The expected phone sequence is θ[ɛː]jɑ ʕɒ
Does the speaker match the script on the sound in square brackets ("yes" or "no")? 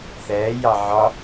yes